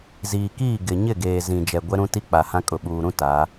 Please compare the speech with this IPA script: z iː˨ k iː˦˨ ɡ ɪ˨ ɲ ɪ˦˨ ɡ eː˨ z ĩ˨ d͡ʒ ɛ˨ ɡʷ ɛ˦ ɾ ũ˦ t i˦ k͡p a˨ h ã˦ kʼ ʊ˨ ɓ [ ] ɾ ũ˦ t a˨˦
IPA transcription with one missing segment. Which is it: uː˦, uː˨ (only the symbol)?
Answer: uː˨